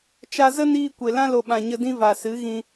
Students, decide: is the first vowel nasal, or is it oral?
oral